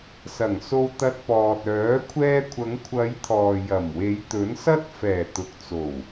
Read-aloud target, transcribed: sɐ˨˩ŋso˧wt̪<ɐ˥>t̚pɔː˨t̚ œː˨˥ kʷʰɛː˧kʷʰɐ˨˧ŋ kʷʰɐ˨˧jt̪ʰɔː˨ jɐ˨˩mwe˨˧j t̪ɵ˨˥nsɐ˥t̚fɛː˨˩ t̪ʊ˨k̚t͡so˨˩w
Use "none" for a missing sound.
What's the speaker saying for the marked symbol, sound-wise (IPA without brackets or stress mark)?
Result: ɐ˧